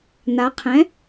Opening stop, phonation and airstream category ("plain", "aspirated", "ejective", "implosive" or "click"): aspirated